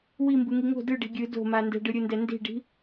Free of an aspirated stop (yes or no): yes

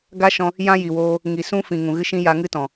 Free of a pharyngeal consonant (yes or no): yes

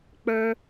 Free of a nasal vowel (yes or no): yes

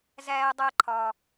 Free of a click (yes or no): no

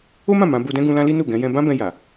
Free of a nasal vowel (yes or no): no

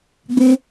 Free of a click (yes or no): yes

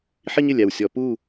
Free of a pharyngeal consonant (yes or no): no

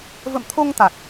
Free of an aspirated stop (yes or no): no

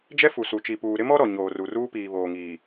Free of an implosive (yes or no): yes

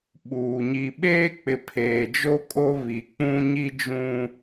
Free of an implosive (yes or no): no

